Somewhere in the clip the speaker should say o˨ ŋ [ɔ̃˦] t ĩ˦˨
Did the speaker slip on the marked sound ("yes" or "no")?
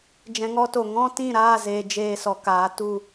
no